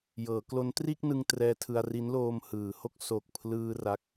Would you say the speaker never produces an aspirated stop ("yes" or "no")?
no